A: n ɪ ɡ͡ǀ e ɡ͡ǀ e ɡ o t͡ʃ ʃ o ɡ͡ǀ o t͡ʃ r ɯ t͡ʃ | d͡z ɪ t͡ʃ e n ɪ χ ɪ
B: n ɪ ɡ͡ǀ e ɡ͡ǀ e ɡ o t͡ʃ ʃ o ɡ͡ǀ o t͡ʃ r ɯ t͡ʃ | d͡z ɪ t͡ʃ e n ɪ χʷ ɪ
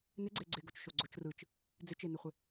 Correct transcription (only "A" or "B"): B